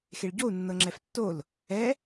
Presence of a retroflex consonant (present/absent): present